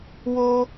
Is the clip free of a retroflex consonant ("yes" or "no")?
yes